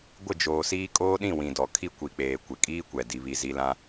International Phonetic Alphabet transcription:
ɡʷ ɪ˦˨ d͡ʒ oː˨ s iː˦ kʼ oː˦ ɗ ĩ˦˨ w ĩ˨ d ɔ˨ kʰ i˦ kʷ i˨ k͡p eː˨ kʷ ɪ˨ kʼ iː˦ kʷ ɛ˨ d i˦ β i˦ z i˦ l ã˦

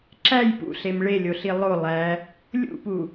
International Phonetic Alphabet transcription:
ǁ æ j p ṵ ɬ e m ɭ e lʲ o ɬ i lˠ o lˠ æ | lʲ ṵ p u

